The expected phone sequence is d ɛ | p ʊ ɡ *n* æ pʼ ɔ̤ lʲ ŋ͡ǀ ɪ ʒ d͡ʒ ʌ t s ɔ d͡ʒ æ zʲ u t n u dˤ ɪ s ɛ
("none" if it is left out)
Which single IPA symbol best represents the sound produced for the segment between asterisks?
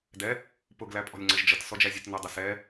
l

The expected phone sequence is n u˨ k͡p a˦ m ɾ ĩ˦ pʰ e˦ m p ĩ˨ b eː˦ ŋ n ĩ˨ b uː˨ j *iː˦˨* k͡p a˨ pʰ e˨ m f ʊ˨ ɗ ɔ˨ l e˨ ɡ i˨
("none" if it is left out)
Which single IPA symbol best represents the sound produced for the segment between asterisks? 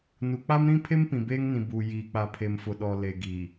iː˨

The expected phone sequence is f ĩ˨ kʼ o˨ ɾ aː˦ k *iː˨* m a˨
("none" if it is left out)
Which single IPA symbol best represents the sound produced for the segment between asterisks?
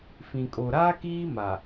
iː˦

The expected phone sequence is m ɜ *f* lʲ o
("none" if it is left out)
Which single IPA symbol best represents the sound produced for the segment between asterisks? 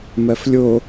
f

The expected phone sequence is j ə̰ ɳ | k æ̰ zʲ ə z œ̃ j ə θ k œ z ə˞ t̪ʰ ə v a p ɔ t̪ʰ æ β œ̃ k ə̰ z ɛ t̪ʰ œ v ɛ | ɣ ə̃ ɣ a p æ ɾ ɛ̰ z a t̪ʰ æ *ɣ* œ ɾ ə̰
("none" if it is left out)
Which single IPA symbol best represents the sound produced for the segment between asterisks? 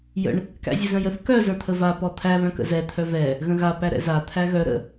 ɣ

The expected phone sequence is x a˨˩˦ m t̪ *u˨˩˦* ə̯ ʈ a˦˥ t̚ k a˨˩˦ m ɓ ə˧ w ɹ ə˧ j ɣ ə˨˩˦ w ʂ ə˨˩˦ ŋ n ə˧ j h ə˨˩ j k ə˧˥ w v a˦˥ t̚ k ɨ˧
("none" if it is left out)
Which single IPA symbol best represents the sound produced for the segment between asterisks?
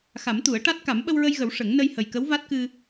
u˨˩˦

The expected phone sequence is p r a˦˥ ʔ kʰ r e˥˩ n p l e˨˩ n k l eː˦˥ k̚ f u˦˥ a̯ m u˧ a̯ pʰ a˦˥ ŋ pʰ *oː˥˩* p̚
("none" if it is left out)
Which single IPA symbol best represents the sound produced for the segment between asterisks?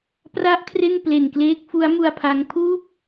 uː˥˩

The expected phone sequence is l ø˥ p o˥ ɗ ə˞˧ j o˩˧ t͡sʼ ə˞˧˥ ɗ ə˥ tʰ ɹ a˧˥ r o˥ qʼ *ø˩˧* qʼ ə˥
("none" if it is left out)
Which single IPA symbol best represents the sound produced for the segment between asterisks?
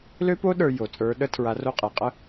e˩˧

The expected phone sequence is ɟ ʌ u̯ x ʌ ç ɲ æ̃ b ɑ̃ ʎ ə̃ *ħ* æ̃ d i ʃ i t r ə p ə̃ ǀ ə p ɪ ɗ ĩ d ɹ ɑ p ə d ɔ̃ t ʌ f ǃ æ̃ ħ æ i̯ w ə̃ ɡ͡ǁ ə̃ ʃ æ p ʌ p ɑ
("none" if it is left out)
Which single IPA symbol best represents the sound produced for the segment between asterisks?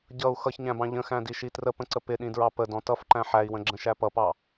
x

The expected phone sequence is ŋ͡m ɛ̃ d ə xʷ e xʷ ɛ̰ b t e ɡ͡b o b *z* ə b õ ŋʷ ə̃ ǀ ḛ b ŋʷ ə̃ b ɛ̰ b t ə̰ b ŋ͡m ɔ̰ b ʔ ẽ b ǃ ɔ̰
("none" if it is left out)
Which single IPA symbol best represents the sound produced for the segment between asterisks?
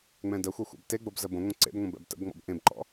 z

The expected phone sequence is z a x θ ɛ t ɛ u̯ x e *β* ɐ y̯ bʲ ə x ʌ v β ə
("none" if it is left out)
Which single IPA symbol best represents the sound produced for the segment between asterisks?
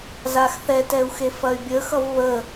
f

